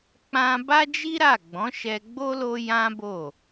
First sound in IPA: k͡p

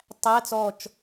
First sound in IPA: tˤ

